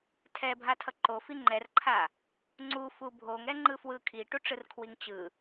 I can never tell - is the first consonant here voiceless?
yes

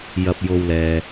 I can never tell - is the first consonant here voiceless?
no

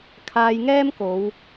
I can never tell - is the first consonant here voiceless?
yes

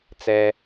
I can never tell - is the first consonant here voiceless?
yes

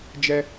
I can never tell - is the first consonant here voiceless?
no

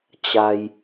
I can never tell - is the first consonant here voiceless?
yes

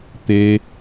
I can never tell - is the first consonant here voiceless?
yes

